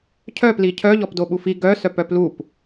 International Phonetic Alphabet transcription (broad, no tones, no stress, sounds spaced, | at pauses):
cʰ œ p l i cʰ œ ʎ ɔ p d o ɓ u f i ɡ œ s œ p œ p l u p